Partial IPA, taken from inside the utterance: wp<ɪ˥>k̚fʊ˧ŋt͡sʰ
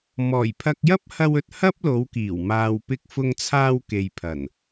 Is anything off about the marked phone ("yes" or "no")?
yes